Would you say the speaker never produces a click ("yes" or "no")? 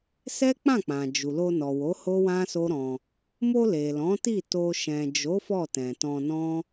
yes